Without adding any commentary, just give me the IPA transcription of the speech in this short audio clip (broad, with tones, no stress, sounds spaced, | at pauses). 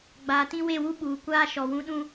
ɡ͡b aː˨ t ĩ˦ w e˦˨ w u˦ ɓ uː˨ kʷ aː˦ ʃ ɔ˨ w ũ˦ ɗ ũ˦